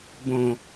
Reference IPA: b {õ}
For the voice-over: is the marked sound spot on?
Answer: yes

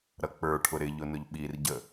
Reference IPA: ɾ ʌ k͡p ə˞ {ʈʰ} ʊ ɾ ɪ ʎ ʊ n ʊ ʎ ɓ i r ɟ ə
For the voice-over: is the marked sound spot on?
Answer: yes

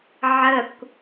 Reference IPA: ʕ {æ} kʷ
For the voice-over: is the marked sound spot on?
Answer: no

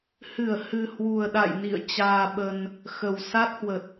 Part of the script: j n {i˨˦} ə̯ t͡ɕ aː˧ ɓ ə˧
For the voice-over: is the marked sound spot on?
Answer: no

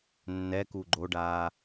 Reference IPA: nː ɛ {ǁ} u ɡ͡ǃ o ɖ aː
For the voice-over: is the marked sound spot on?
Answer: no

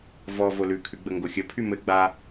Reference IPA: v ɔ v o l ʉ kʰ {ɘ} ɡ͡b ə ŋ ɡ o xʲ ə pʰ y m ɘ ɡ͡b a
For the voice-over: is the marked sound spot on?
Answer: no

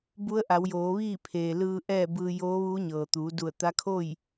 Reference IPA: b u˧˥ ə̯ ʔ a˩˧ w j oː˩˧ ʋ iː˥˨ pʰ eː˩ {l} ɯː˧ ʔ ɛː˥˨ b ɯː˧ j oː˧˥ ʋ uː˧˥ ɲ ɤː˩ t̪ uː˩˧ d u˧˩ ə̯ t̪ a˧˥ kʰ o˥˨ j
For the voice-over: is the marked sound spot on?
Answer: yes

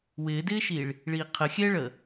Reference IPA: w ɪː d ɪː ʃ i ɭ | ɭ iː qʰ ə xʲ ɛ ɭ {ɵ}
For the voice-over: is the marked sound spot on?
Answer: no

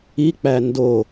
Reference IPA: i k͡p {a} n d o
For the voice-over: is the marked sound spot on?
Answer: no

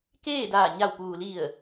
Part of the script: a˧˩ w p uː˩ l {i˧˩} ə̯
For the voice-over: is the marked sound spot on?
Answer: yes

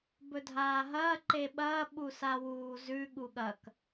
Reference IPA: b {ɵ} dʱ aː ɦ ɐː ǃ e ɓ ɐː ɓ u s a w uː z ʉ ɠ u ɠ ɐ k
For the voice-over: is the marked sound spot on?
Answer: yes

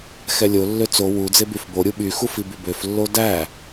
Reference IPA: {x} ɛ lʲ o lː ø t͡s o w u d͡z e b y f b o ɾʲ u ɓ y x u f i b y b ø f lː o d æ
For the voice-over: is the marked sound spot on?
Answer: yes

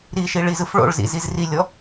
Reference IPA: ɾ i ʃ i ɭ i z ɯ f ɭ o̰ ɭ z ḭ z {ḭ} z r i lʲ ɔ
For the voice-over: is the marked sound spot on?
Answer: no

